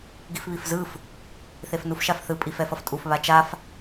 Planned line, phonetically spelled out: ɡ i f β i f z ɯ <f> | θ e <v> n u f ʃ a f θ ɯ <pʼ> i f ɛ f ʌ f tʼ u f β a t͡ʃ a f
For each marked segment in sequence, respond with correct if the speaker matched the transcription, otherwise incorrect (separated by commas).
correct, incorrect, correct